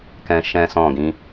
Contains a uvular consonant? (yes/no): no